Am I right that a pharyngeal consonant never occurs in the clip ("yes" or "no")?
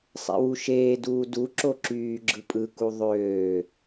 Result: yes